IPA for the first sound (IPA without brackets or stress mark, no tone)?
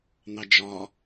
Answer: n̪